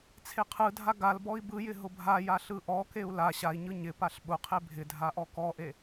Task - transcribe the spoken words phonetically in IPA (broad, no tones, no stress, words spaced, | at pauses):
t͡sʰeqʰɯdʱa ɡalbɔi̯ bɯjɪ ɦʊbʱaja ɬɯʔɔkeu̯ la ɕai̯ɲɯ ɲɪpaɬ ɓʊqʰe bʱɪdʱa ʔɔkɔʔe